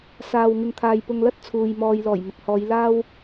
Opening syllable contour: low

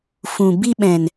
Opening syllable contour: low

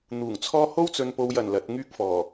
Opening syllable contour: low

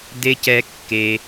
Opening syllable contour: low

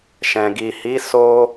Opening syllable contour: low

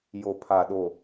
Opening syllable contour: low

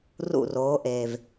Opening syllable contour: falling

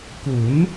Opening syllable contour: rising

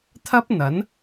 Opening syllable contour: high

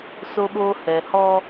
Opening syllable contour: high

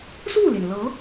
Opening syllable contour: falling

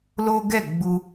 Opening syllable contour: high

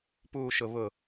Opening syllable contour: low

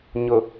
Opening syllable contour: low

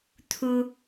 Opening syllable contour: low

